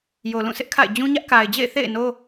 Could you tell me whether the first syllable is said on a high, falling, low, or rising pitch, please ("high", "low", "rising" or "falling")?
low